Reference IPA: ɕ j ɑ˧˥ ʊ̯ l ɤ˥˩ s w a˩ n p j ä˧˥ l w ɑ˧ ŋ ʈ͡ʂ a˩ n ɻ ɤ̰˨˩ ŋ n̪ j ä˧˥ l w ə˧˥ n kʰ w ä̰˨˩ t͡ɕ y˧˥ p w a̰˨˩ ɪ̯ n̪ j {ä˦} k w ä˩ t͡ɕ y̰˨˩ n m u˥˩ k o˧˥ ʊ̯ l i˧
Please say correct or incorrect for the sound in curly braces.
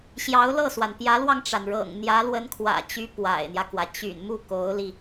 correct